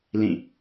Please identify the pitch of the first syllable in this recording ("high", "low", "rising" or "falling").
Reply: falling